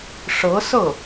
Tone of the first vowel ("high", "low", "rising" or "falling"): rising